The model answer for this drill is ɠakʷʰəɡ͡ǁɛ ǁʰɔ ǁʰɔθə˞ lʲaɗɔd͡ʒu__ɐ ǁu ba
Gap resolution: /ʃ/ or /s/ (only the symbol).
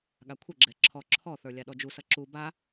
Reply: s